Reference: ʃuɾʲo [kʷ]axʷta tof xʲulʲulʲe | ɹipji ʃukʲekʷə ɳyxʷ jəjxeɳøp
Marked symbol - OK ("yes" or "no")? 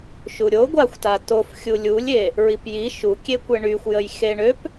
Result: no